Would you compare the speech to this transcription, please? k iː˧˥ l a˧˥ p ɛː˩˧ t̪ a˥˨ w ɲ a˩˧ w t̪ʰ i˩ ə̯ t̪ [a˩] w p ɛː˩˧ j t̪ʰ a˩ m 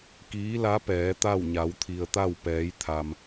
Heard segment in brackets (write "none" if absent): a˥˨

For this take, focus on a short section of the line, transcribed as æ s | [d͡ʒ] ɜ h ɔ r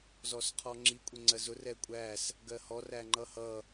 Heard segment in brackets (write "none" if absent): ɡ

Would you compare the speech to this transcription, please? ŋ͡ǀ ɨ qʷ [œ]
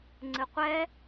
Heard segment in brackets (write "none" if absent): ɛ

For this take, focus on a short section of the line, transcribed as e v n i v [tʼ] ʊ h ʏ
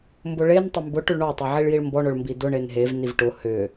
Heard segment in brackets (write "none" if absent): ʈ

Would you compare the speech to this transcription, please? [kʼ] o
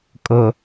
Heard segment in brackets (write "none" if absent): kʼ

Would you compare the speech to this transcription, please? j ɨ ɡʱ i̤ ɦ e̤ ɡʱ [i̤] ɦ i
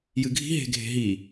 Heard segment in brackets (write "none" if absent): e̤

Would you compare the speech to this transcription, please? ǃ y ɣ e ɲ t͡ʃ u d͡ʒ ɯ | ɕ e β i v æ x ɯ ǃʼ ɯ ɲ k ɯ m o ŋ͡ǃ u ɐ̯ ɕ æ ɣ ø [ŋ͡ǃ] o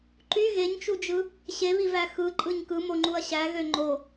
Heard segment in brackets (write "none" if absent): ŋ͡ǃ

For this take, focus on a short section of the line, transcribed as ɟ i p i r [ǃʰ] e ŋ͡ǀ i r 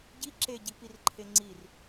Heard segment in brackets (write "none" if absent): ǃʰ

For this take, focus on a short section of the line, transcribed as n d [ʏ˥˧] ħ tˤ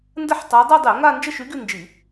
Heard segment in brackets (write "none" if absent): ə˥˧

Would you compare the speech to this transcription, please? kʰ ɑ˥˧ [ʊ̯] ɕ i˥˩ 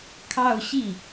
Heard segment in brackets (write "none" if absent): ʊ̯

